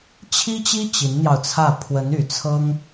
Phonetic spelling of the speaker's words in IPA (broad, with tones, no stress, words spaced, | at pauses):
t͡ɕʰi˥t͡ɕi˥ t͡ɕi˧˥nn̪jɑ˧ʊ̯t͡sʰä˥˩ pʰwə˧˥ny˨˩ t͡sʰɤ˥ŋ